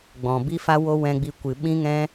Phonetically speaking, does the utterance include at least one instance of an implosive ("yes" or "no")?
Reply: yes